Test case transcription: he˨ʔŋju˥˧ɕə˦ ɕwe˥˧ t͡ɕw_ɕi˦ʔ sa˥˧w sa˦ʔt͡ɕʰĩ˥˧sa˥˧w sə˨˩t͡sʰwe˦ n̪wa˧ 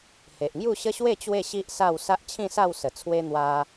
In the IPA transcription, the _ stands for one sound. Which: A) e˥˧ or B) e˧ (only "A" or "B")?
A